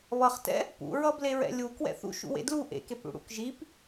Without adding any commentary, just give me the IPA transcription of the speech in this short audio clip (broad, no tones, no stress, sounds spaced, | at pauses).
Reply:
β ʌ χ t ɛ̰ | p ṵ ɹ ʌ b l e ɹ ɛ̰ lʲ u k w ɛ̰ θ ṵ ʃ ṵ w ḛ d l u ʔ ḛ k e p ɽ ṵ ɽ ṵ k ʒ i p